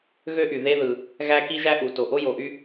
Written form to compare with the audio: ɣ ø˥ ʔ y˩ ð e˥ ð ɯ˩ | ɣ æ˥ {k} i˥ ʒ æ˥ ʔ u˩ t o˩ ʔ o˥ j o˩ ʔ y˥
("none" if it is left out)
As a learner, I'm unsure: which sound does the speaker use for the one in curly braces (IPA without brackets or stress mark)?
k